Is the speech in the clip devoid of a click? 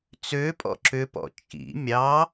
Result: no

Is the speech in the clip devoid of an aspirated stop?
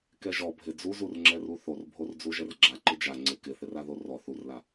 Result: yes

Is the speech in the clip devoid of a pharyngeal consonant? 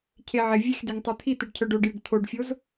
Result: no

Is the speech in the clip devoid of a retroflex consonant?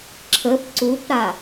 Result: yes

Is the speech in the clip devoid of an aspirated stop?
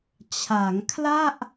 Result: no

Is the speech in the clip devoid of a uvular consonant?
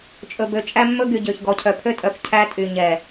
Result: yes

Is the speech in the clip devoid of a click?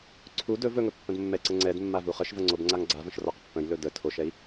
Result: no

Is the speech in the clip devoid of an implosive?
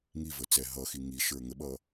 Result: no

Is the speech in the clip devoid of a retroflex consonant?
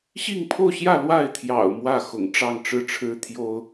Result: no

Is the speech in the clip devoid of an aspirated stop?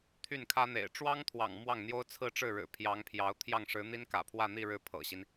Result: no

